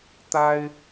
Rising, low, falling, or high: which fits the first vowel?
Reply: high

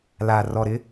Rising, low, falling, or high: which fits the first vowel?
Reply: low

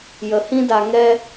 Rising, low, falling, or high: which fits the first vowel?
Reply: low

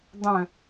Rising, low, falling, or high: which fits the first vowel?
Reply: low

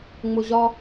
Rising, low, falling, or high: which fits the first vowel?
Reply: low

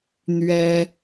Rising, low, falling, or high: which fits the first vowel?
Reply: high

